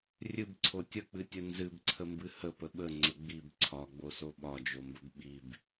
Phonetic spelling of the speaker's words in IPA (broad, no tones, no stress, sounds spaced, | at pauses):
rʲ ɨ b ǀʰ o tʲ ə k͡p ɨ tʲ ə n z ɨ b ǀʰ ə m b ɨ h ə p ə ɓ ə ŋ͡ǀ ə ɡ͡b i b ǀʰ ɒ ɡ͡b o s o ɓ ɒ d͡ʒ o m b ə b ɓ i b